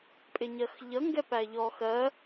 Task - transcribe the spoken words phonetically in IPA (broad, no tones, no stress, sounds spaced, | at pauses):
pʼ ɪ ɲ ɜ x ʎ ʌ ŋ ɡ ɛ p æ ʎ ɔ x ɜ